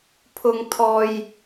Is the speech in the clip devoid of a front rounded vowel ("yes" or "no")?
yes